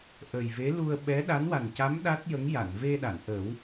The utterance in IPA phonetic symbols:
ʔ ə˨˩ j v e˧˥ l u˧ ə̯ ɓ ɛ˧˥ ɗ a˧˥ n w a˨˩ n c a˧˥ m ɗ a˦˥ t̚ j ə˧˥ ŋ j a˨˩˨ n v e˧ ɗ a˨˩˨ n ʔ ə˨˩˦ w

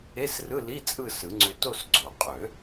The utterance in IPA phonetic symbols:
e˧˥˧ s r ɯ˧˥˧ l i˧˥˧ t͡sʼ ɯ˥˧ s ɯ˨˩˦ ŋ͡ǀ ø˧ t o˥˧ s ɡ͡ǀ o˨˩˦ qʼ ø˨˩˦

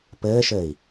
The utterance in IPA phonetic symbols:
p ɘː ʃ ɘː i̯

